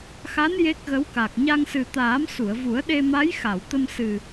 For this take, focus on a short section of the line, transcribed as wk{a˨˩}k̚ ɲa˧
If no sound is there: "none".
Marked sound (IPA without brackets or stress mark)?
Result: a˨˩